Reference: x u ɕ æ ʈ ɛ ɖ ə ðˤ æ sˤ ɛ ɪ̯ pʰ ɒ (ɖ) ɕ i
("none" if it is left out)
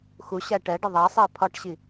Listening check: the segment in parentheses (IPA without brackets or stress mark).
ʈ